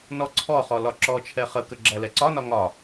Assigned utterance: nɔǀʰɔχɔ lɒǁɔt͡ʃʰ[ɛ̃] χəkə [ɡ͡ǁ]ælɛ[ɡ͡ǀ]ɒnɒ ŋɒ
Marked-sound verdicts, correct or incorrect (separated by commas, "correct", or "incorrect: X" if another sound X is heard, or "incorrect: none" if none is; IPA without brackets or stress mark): incorrect: ɛ, correct, incorrect: ǀ